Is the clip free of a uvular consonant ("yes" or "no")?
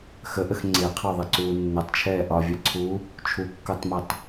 no